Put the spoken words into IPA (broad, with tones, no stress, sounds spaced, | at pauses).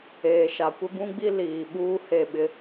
eː˨ ʃ a˨ kʷ ɪ˦ b ũ˦ ɡ͡b i˦ l iː˨ ɓ uː˦ h e˦˨ ɓ ɪ˦